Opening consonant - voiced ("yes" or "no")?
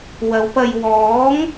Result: yes